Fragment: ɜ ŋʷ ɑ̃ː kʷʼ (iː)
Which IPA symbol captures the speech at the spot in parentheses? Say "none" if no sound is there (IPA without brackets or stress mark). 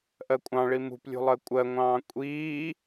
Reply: iː